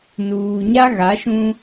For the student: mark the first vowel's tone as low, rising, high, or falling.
low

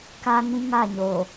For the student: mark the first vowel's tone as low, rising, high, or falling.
high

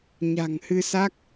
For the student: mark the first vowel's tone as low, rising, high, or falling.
low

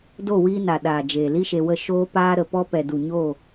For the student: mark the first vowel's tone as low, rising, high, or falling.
falling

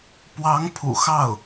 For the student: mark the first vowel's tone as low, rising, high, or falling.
rising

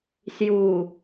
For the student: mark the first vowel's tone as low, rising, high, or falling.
low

